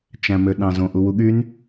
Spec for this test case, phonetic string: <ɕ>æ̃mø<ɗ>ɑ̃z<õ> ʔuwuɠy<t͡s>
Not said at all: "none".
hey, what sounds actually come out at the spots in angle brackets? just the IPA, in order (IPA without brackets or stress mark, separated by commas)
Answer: t͡ʃ, ɗ, õ, n